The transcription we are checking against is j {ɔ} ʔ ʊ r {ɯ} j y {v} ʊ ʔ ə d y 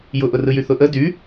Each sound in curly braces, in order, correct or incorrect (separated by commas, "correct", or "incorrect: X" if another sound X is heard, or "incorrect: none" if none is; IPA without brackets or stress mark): incorrect: ʊ, correct, incorrect: θ